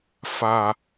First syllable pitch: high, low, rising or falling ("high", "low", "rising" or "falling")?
low